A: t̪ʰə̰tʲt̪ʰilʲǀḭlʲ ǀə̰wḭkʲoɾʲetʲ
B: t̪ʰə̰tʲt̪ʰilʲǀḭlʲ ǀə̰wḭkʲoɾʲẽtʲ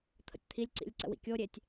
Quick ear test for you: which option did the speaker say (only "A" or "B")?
A